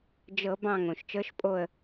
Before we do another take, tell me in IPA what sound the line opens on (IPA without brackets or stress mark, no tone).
d͡ʒ